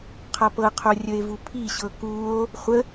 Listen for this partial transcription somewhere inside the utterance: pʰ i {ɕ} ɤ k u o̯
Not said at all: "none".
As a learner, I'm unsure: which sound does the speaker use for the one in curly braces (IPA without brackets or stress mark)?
ɕ